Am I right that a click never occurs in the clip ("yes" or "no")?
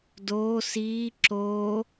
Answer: no